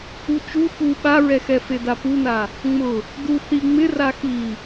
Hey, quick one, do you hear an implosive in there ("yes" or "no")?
yes